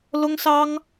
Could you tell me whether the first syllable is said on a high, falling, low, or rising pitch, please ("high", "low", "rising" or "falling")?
high